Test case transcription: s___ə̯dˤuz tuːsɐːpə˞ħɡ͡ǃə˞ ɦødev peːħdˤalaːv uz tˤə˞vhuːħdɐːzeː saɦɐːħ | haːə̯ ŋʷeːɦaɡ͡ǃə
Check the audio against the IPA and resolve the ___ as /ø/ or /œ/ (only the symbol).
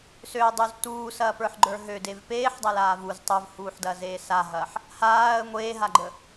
ø